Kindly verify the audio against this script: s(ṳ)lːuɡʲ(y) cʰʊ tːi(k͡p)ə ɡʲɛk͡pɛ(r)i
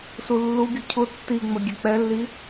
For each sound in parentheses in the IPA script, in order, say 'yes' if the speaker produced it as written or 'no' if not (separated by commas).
no, no, no, no